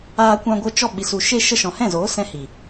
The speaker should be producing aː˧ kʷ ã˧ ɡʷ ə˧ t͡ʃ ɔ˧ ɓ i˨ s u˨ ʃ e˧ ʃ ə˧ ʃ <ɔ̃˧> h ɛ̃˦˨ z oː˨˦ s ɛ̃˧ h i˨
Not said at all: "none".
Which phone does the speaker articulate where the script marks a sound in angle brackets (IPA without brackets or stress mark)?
ɔ̃˨